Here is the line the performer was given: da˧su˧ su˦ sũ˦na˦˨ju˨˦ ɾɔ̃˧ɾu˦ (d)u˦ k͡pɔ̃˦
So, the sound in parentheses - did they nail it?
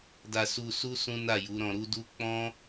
yes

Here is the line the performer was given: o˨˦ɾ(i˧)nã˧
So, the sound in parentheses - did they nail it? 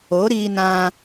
no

